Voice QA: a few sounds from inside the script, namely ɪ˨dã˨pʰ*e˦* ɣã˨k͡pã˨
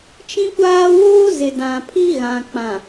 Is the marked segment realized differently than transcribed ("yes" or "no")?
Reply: yes